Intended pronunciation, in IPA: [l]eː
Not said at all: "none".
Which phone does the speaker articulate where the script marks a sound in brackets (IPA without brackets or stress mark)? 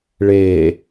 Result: ɭ